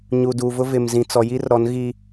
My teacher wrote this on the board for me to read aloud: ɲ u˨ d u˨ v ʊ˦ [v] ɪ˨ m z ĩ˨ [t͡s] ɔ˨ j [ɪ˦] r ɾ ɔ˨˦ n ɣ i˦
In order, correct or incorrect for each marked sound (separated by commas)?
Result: correct, correct, incorrect